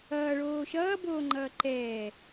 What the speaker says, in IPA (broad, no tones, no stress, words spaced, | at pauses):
ʌːɭoː ʃʌːboːŋ͡ǃʌː ǃɛː